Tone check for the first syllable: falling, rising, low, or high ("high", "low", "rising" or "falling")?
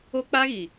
high